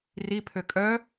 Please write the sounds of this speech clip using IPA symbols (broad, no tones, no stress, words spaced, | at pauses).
ripʰø kʼœ